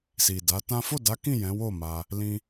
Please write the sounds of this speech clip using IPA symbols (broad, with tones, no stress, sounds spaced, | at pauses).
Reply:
s i˨ d a˨˦ t ã˦ f o˦˨ d a˨˦ k ĩ˦˨ j ɛ̃˨˦ w o˦˨ m a˧ | l ĩ˧